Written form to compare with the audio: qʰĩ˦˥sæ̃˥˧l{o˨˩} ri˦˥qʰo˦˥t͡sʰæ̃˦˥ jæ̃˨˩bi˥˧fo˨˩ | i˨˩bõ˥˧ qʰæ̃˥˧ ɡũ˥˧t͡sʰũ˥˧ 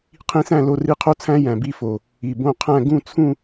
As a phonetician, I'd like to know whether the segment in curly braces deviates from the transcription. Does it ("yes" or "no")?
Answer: yes